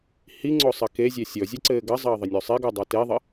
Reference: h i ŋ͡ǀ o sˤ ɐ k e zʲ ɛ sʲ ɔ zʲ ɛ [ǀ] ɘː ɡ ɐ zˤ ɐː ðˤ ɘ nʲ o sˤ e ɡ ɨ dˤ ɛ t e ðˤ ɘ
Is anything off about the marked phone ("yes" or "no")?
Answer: no